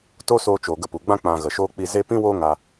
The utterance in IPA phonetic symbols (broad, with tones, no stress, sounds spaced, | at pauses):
t o˦ s oː˧ t͡ʃ o˨ ɡ ə˧ p u˨ ɡ͡b ã˦ k͡p ã˧ ɣ ə˨ ʃ oː˦ k͡p i˧ z e˦ p ĩ˦ w oː˦ ŋ a˧